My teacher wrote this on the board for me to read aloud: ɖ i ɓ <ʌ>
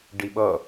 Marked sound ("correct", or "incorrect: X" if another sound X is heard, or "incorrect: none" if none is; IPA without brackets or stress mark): correct